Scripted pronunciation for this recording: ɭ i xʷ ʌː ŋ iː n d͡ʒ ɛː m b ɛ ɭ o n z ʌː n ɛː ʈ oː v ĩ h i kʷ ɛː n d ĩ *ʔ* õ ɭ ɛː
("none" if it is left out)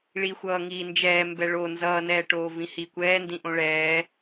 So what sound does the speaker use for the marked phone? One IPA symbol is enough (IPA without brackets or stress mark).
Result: ʔ